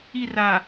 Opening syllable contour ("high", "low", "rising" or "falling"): falling